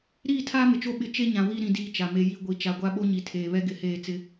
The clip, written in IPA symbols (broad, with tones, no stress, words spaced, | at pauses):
ɾiː˦˨tʰaː˦mɪ˨t͡ʃo˦ ɓɪ˦ t͡ʃe˦ɲã˨wi˦˨ ɾĩ˦diː˦t͡ʃa˨me˦ ji˦ ɡʷi˨ t͡ʃa˨ɡʷa˦ɓo˦ ɲi˨tʰeː˨βɛ˦ ɡɪ˨˦heː˦˨ t͡sɪ˦